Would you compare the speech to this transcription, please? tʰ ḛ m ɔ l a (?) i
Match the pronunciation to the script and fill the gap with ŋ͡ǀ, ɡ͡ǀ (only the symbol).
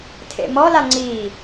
ŋ͡ǀ